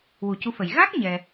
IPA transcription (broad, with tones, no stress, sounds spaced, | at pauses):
w u˨˩˦ c u˧˥ f ə˨˩ j ɣ a˦˥ k̚ ɲ ɛ˧